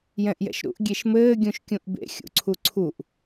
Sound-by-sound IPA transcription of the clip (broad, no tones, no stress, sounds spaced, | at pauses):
j ɛ̃ ʔ j ɛ̰ ʃ ɾ ṵ ʔ ɡʲ e ʃ m ɘː ɡʲ ũ ʃ kʲ ũ ʔ b ḛ xʲ ṵ ǀʰ u ǀʰ u ʔ